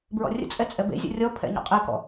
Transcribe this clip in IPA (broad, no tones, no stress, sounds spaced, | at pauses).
b ɹ ɔ̰ rʲ ə̰ t͡sʼ ɛ t͡sʼ ɛ b ḛ zʲ ɔ̰ rʲ ɔ pʰ ɛ̰ ɲ ɔ̰ qʼ e k ɔ̰